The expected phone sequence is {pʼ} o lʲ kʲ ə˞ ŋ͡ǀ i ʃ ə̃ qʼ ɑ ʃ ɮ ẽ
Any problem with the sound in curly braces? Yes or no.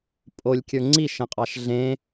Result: no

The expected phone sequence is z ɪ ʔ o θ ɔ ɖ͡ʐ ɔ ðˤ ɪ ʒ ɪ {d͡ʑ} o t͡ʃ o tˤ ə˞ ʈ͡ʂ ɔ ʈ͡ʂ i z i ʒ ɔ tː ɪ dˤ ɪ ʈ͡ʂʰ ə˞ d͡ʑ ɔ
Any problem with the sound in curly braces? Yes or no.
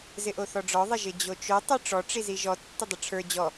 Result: no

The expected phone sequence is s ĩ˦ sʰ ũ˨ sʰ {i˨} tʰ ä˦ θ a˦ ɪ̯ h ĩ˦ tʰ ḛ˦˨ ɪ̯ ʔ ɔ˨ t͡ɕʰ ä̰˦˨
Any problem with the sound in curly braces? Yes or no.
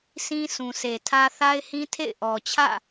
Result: yes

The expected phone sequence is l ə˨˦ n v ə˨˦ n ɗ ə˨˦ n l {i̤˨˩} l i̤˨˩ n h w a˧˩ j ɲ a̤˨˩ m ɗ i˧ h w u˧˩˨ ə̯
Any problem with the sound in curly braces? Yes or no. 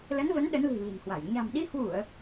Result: no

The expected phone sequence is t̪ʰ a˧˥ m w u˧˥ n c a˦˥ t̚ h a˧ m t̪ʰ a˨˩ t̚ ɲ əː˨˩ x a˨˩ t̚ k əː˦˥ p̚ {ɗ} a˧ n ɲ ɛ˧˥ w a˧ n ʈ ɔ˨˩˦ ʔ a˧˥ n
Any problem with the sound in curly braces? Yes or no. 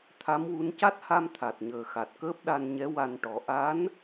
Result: no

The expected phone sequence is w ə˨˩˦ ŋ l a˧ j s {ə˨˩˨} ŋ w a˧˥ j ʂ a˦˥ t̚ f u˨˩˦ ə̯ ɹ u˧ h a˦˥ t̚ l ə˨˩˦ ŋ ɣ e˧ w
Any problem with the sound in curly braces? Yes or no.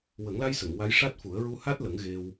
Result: no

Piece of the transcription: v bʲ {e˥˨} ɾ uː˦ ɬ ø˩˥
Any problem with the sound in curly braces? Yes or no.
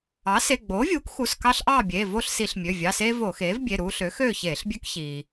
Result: yes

